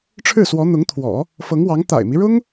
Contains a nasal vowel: no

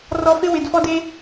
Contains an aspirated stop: no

